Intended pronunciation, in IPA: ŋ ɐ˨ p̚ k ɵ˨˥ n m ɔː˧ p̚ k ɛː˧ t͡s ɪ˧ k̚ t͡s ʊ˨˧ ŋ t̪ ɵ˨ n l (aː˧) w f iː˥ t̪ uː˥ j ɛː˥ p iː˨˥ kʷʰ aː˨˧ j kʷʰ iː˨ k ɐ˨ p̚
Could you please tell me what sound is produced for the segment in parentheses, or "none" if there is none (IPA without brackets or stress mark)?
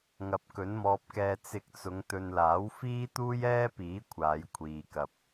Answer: aː˨˥